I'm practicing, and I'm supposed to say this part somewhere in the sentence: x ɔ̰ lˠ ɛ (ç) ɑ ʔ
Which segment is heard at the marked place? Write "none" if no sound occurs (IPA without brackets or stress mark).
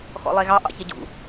ɣ